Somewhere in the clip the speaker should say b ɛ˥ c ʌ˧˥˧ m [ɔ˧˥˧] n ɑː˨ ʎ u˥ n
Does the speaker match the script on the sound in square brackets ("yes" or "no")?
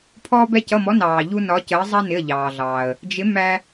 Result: yes